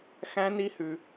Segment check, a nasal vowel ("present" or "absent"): present